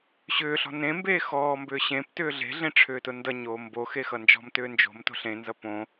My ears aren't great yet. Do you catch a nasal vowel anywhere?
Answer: yes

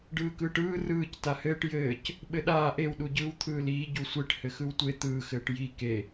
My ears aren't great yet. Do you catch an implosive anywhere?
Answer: yes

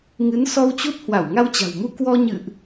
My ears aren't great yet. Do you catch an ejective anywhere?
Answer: no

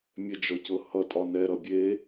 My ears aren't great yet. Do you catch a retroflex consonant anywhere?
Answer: no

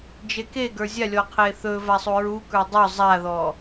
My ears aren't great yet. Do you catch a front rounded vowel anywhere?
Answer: no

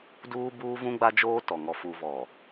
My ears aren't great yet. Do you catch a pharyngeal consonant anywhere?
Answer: no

